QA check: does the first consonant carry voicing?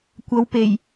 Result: no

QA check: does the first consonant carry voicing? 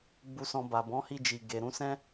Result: yes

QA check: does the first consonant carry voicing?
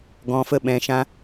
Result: yes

